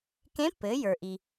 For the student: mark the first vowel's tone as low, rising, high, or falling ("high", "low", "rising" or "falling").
rising